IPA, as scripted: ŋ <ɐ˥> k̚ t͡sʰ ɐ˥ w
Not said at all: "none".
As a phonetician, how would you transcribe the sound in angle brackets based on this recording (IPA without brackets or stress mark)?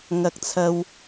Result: ɐ˥